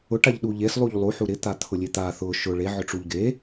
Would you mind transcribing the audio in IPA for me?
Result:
ʊ ʈ a ʎ ɗ u ʎ e s lˠ u ʎ lˠ u ħ u ɾ ɪ t̪ a t̪ʰ ʊ lʲ e t̪ a θ ʊ ʃ ʊ ɭ e ʕ ʊ ʈ͡ʂ u ʎ ɡ e

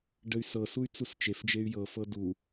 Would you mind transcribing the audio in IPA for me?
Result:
ɖ ə y̯ s ɤ s u y̯ t͡s u s t͡ʃ e f d͡ʒ e y̯ j ɤ f ɤ d u

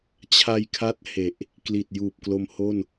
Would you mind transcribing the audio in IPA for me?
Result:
t͡ɕʰ a˧ j kʰ a˦˥ t̚ h e˨˩ ʔ | k l i˨˩ t̚ j uː˨˩ p̚ k l o˧ m h o˥˩ n

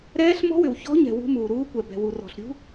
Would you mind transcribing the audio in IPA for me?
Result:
ɾ ɛː˦˥ ɬ m ɔ̤˦˥ w ʏ˨ w ç ɔ̤˦˥ ɲ ɛ̤˨ w ṳ˦˥ m uː˨ ɾ uː˦˥ kʷ ɛ˨ b ɛ̤˨ w u˨ r ɔ̤˨ ɬ ɾʲ ṳ˦˥

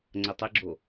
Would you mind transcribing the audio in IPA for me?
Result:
ŋ͡ǀ ə tˤ ɪ ɡ͡ǁ o

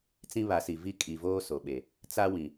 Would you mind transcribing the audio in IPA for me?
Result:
t͡s ĩ˦ β a˨˦ s i˨ v i˦ kʼ i˨ v oː˦ s o˨ ɓ e˨ | t͡s a˦ w ĩ˨

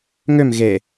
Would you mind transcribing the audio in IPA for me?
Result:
ŋ ø m ɣ e

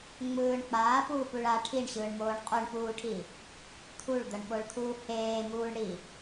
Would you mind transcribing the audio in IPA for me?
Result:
ŋ͡m ɯː ɳ k͡p aː p uː p u ɭ a ʈʰ i ɳ ɕ ɯː ɳ m oː ɳ qʼ u ɳ p uː ʈʰ i | t̪ʰ u ɭ d̪ ʌ ɳ ɓ o ɭ t̪ʰ uː h eː m uː ɳ ɽ i

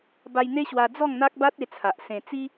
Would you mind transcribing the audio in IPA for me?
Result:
b a˧ j n̪ e˦ ɕ w a˧ d͡z ɔ˥˧ ŋ n̪ a˦ k̚ b a˦ t̚ e˧ t͡sʰ a˨ ʔ s ẽ˧ t͡s i˦

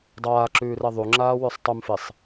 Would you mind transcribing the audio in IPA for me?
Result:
dˤ aː ǁ ʉː r ɛ ðˤ u ŋ͡ǁ aː w ʉ sˤ tˤ ʉ m f i sˤ

